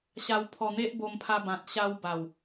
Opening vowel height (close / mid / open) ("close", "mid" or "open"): open